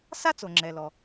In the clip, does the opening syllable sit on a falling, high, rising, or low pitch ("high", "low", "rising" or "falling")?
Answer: high